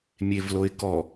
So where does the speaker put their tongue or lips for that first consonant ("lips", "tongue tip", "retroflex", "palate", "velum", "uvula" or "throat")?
lips